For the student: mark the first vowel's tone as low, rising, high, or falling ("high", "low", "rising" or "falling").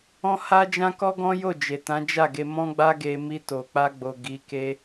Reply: high